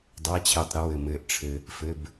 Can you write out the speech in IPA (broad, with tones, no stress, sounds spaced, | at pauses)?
dˤ a˧˥˧ t͡ɕʰ ɪː˧ tˤ ɾ ɪ˩˥ w ɘ˨˩ m ɘː˧ ʔ ʈ͡ʂʰ ɘ˧ | f ɘ˧˥˧ b